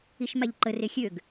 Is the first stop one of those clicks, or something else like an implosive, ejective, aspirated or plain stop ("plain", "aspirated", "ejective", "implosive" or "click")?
click